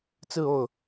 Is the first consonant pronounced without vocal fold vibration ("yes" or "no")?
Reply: yes